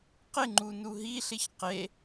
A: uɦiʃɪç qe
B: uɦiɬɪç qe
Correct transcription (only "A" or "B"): B